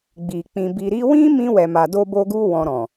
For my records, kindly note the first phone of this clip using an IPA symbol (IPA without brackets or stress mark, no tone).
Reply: ɡ͡b